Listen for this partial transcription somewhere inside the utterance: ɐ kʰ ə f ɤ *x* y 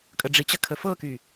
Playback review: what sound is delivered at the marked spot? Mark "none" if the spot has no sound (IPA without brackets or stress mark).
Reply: k